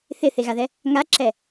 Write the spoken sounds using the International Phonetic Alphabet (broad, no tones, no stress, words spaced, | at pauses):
θɪθeɣaðɛ | ŋaǁɛ